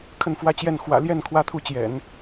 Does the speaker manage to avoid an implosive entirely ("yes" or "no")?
yes